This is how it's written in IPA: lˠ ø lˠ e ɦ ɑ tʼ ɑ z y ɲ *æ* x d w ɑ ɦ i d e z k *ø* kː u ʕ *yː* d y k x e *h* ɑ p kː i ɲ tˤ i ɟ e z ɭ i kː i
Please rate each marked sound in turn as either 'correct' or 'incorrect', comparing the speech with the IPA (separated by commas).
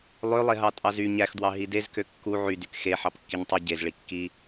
correct, correct, incorrect, incorrect